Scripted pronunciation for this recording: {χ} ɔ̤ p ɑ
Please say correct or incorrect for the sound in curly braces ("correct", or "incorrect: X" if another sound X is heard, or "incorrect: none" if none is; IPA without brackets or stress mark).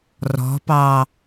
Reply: incorrect: r